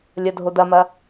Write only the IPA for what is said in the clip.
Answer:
lʲ ɐ dʱ o d ɐ m ɐ

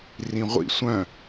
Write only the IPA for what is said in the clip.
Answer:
r ĩ ʁʷ ḭ sʷ œ̃

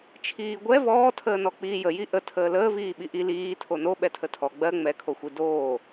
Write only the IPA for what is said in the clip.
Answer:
t͡ʃʰ iː ɡʷ ɛ v ɔː tʰ əː n ɔ k͡p iː j ə j i ʔ ə tʰ əː l əː v iː ɓ i ʔ i l iː tʰ o n o ɓ ɛ tʰ ə tʰ ɔ ɡ͡b ɜ ŋ͡m ɛ kʰ o xʷ i d oː

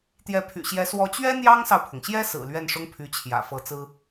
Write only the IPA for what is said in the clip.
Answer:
t̪ j ɛ˧˥ pʰ y̰˨˩ ɕ j ɛ˧˥ s w ɔ˧˥ t͡ɕ ɥ ɛ˥ n̪ j ɑ˥ ŋ s ɑ˨ ʊ̯ pʰ ʊ˩ ŋ ɕ j ɛ˥ s ɹ̩˨˩ l ɥ ɛ˥˩ n ʂ ʊ˥ ŋ pʰ y˧˥ t͡ɕʰ j ä̰˨˩ f ɤ˧˥ t͡s ɹ̩˥

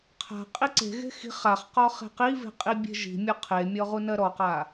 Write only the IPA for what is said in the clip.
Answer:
qʰ a̤ qʼ i ǀ e̤ ɣ e̤ x i̤ χ a χ q ɔ χ e̤ q i v e̤ qʼ i bʲ e̤ ʒ i̤ mʲ ɔ qʰ e mʲ ɔ ʁ u n ɜ ɾ ɔ q a

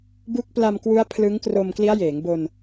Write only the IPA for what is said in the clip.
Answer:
b u˦˥ k̚ p l a˧ m k w u˦˥ a̯ pʰ l ɯ˦˥ ŋ k r o˧ m k l i˦˥ a̯ j eː˩˦ ŋ b o˧ n

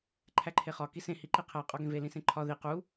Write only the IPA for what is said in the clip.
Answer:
ǃʰ æ ǃʰ e χ ɒ k i s ẽ h i ǃ i qʰ æ qʼ ɒ ɡ ẽ v e l ĩ s ẽ ǃʰ ɒ ð i q u

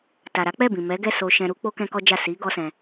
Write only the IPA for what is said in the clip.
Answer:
t a˨ ɾ a˨˦ k͡p ɛ˦˨ b ĩ˨ m ɛ˨˦ ɡ ɛ˦˨ s o˧ ʃ ɛ̃˧ ɾ u˦ k͡p o˦ k ɛ̃˦ k ɔ˦ d͡ʒ a˦˨ s i˨˦ ɡ ɔ˦ s ɛ̃˧

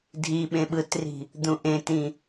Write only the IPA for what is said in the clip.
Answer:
dʱ i ɓ ẽ ɓ ɯ t r i̤ | d̪ ũ ʔ ẽ t ĩ

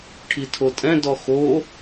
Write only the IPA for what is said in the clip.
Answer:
ʈʰ i tʰ o tʼ ɛ̃ d ɔ x o

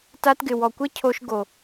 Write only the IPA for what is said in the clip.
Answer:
t a˧ t ɡ ɪ˨ w ɔ˨ kʷ ɘ˦ cʰ o˧ ʃ ɡ o˨

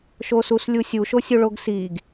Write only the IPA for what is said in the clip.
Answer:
ʃ o s u s lʲ u sʲ u ʃ o sʲ u ɭ o ɡ s i ɡ

